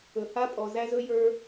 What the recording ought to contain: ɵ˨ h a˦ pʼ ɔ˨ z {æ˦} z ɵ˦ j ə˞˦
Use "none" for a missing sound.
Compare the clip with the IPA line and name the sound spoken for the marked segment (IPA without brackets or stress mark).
æ˦